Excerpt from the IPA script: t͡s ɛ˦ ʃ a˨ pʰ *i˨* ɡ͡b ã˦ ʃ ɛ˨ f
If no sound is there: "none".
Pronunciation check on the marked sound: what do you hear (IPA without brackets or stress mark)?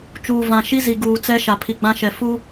i˨